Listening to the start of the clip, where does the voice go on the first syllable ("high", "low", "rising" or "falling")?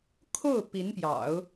falling